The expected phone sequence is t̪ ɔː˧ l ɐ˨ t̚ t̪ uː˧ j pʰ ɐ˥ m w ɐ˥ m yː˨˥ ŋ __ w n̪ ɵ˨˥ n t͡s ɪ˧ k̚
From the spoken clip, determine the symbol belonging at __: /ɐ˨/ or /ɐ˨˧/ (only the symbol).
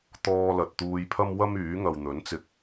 ɐ˨